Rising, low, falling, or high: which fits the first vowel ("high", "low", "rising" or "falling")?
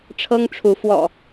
high